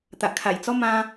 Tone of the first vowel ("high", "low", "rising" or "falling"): low